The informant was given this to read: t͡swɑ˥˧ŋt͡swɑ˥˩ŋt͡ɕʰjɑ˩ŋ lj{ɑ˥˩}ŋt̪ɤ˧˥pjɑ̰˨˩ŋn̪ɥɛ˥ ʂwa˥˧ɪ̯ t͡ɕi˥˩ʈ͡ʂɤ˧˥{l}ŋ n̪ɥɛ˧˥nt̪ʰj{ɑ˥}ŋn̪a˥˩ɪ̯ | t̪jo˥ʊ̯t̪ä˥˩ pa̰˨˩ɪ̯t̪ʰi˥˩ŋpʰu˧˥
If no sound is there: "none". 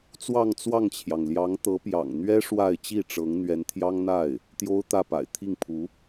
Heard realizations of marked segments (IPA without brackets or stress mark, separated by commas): ɑ˧˥, none, ɑ˥